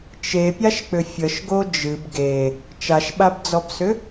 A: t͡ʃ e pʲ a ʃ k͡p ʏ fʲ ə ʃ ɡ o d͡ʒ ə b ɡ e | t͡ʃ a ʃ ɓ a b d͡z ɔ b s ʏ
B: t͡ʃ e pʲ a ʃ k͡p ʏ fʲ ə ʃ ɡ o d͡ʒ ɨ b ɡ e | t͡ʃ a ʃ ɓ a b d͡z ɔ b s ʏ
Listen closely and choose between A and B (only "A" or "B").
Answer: B